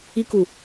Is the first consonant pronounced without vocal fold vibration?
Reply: yes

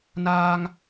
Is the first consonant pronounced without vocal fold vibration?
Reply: no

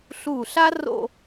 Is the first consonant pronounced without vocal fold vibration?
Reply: yes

